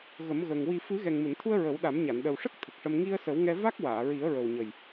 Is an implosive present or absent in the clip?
present